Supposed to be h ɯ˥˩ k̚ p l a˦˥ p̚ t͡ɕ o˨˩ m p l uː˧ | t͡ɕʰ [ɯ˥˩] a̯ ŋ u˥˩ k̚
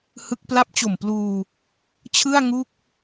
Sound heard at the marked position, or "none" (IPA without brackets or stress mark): ɯ˥˩